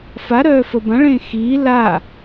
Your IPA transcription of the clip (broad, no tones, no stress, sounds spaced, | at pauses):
f a ɾ œː f ə b ã ɭ ẽː x iː l a